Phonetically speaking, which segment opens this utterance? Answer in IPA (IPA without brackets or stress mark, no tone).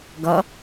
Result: ɡ